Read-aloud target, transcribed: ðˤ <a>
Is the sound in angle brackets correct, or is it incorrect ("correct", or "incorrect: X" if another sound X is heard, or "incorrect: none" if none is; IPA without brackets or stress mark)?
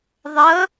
incorrect: ʌ